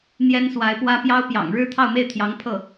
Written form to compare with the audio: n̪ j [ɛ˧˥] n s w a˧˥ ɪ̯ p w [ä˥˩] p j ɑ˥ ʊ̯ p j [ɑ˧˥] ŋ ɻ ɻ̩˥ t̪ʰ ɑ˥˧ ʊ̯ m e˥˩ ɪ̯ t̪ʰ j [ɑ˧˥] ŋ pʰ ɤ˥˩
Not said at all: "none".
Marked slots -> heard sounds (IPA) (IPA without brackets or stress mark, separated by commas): ɛ˥, ä˥, ɑ̰˨˩, ɑ˧˥